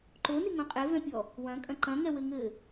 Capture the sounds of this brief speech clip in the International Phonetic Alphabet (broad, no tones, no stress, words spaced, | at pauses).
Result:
ǃoniŋõ qʼevɛ̃pʲɔ | wɐ̃kʼɐ̃ ǃɐ̃ŋɛwɘŋɘː